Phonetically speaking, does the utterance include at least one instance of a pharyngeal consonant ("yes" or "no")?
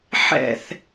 yes